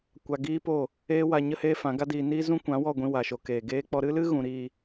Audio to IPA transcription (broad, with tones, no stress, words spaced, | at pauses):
kʷa˧ɡiː˦po˦˨ | eː˦ wa˧ ɲə˦heː˦fã˨˦ɡa˦ diː˧niː˦ zũ˦ kʷã˨˦wɔ˦˨ɡʷĩ˧ wa˨ʃo˧keː˨ ɡeː˧k͡pɔ˧ɾɨ˦lɨ˦ ɣũ˨˦ɾiː˧